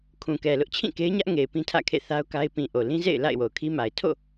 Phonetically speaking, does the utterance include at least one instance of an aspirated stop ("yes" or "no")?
yes